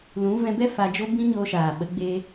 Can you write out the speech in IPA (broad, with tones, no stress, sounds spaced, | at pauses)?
l ũ˨˦ v ɛ̃˧ b ɛ˦ f a˧ d͡ʒ o˦ b ĩ˦ ɲ o˧ ʃ aː˨ ɓ ə˨˦ ɡ͡b e˧